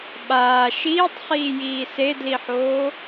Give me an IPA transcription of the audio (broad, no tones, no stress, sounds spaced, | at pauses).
ɓ aː ʃ iː tˤ χ iː j iː s e d l i ħ oː